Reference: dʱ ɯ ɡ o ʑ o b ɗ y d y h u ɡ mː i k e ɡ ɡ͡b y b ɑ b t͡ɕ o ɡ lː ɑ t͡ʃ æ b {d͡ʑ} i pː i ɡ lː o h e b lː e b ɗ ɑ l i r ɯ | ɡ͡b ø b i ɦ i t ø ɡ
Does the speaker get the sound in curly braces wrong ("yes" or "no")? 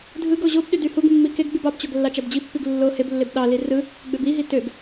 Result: no